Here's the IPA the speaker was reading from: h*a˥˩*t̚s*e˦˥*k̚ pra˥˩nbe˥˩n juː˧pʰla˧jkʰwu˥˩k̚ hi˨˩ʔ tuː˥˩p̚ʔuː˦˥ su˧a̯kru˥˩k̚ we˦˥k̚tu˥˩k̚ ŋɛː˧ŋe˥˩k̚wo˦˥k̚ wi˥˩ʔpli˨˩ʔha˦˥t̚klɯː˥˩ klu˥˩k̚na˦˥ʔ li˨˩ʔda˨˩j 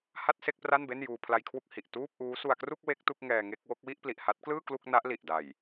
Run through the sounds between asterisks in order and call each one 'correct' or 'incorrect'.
correct, incorrect: e˥˩

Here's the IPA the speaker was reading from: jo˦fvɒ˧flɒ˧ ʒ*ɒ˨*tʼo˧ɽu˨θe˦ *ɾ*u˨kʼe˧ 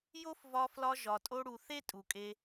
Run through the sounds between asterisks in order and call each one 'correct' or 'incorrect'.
correct, incorrect: tʼ

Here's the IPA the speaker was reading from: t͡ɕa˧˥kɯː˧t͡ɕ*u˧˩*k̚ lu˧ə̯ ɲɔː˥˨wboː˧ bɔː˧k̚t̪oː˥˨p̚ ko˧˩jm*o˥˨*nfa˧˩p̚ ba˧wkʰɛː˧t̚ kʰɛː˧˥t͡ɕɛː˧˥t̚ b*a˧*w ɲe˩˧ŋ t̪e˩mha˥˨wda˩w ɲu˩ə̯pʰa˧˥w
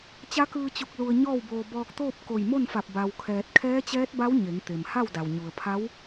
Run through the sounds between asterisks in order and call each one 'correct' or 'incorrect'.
correct, correct, incorrect: a˧˥

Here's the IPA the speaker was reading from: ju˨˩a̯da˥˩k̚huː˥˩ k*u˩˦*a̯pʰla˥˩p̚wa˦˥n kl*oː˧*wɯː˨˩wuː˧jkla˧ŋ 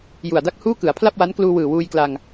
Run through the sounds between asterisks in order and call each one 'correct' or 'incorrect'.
incorrect: ɯ˩˦, incorrect: uː˧

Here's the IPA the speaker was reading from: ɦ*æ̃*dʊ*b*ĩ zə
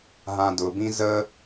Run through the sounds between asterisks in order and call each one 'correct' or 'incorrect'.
incorrect: ã, correct

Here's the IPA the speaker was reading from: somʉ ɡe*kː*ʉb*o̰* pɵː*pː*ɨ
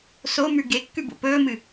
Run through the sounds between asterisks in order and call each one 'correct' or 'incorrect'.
correct, correct, incorrect: m

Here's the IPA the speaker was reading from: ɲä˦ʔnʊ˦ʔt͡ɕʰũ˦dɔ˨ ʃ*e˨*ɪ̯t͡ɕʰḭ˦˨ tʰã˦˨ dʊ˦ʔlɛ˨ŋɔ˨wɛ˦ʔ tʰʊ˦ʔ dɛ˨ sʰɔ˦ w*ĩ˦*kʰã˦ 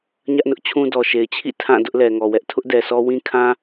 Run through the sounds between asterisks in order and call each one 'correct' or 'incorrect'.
correct, correct

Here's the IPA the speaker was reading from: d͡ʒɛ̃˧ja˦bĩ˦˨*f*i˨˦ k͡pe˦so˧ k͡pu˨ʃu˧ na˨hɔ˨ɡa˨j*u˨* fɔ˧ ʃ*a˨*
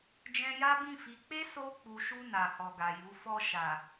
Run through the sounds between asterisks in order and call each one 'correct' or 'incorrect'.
correct, incorrect: u˨˦, correct

